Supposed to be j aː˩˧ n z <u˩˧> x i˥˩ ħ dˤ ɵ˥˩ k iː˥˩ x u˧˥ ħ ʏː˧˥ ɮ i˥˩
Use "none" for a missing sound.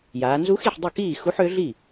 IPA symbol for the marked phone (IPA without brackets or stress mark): u˧˥